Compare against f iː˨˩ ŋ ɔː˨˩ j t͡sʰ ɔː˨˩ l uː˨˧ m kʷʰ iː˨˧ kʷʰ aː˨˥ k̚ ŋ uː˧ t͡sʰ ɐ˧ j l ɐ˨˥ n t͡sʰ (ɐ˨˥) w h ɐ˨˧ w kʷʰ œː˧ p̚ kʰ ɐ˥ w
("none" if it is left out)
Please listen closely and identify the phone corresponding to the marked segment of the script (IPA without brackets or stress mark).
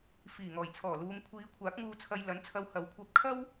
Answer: ɐ˧